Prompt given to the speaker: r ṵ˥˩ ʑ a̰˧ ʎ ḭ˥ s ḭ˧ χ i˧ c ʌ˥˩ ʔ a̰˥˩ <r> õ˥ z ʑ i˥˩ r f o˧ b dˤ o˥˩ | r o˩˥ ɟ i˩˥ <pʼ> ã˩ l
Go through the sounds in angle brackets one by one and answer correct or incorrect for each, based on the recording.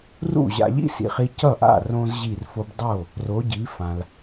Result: correct, incorrect: f

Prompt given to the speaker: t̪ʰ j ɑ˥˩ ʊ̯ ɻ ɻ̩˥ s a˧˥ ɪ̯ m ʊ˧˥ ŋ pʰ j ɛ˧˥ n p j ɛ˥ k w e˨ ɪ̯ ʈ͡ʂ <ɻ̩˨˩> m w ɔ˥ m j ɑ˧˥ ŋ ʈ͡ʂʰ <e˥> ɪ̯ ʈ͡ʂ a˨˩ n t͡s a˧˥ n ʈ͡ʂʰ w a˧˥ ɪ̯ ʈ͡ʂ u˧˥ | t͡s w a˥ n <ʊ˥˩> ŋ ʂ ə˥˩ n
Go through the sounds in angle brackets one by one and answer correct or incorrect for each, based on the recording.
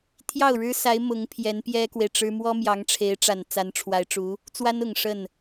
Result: incorrect: ɻ̩˥, incorrect: e˧˥, incorrect: ʊ˨˩

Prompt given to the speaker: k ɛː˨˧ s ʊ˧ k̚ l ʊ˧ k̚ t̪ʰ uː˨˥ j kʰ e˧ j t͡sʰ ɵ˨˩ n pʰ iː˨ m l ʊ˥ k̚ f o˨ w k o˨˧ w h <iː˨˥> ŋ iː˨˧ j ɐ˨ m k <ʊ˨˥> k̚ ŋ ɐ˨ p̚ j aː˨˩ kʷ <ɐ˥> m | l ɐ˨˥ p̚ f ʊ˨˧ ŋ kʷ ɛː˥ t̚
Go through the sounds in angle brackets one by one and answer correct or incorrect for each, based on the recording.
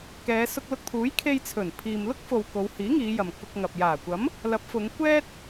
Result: correct, incorrect: ʊ˧, incorrect: ɐ˨˥

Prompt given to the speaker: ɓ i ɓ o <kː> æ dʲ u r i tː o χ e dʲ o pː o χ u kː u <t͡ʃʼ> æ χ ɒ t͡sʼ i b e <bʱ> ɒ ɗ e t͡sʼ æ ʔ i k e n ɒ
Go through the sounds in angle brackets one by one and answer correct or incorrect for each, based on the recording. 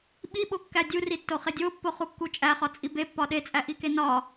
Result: correct, correct, incorrect: pː

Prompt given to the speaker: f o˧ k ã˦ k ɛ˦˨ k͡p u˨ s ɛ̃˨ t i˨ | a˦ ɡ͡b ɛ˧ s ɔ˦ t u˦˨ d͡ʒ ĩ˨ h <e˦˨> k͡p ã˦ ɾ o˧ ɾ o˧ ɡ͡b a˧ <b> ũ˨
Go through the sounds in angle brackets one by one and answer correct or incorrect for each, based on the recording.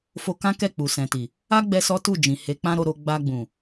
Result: incorrect: e˨˦, incorrect: ɡ͡b

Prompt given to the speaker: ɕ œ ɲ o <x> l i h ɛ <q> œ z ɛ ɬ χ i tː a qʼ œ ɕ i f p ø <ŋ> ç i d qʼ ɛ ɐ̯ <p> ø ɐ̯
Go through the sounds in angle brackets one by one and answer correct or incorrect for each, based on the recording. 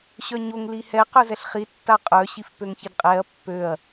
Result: incorrect: ŋ, correct, correct, incorrect: pː

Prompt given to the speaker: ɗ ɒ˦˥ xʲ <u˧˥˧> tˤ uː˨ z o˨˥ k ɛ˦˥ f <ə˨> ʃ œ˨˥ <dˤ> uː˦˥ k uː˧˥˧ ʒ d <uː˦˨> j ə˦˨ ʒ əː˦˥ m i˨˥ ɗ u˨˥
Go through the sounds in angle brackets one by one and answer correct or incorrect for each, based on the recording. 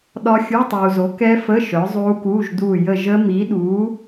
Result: correct, incorrect: ə˧˥˧, incorrect: zˤ, correct

